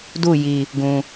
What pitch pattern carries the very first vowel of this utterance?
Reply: falling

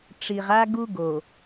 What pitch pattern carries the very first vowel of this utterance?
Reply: low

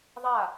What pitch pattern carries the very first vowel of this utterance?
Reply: falling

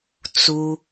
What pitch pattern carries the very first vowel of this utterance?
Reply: high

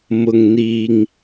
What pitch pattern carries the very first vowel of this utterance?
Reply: low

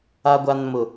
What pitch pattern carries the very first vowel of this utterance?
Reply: low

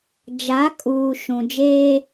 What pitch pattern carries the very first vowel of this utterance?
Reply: rising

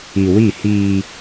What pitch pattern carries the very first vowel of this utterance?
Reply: low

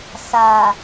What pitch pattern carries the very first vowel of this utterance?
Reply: low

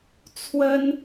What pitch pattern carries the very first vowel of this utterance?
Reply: high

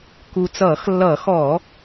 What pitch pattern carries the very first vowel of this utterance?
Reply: low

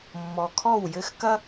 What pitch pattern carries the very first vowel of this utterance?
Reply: low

